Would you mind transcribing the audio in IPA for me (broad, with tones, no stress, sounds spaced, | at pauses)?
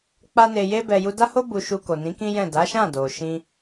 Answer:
k͡p a˦ n e˧ j e˦ b ɛ˧ j u˧ d a˦ h o˦ b u˧ ʃ u˧ k o˨ n ĩ˨˦ k ĩ˦ j ɛ̃˦˨ d a˨˦ ʃ ã˦˨ d o˨ ʃ ĩ˧